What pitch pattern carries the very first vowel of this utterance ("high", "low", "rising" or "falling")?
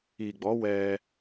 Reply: low